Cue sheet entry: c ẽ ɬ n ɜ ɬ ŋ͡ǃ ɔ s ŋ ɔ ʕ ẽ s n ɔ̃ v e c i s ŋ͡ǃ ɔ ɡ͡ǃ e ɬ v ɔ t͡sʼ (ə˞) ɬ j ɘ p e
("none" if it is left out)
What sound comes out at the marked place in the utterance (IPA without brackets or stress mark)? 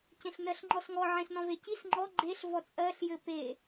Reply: ɜ